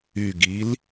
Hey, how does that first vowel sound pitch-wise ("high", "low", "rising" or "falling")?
low